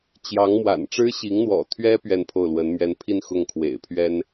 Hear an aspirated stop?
yes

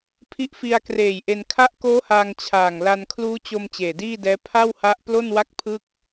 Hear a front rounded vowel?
no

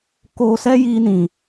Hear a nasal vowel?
yes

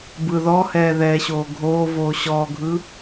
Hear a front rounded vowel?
no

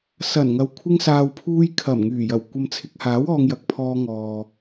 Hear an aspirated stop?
yes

